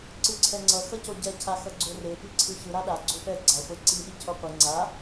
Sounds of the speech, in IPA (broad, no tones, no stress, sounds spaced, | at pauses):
ǀ ɯ ǀʰ ɛ ŋ͡ǀ ʌ x ʌ c o ɟ ɛ cʰ a x ʌ ɡ͡ǀ o r e p i ǀʰ ɯ ç ɯ ɾ a ɗ a ɡ͡ǀ o p ɛ ɡ͡ǀ a χʷ e ǀ i ɗ i cʰ o qʷ ɯ ŋ͡ǀ a